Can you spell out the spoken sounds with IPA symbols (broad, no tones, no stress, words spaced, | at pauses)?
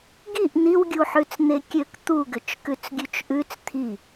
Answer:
ɡiʔ n̪iwɡʲuħʉt͡s n̪ekʲøk t̪uɡʏt͡ʃ kʉt͡sɡʲʉt͡ʃʔʉt͡s t̪ʰi